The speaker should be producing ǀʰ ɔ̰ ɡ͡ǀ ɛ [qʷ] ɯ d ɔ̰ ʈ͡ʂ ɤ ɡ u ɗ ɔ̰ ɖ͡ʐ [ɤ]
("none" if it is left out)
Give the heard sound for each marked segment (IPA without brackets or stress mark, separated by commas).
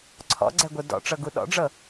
ɡʷ, ɤ